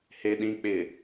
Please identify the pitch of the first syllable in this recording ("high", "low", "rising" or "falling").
low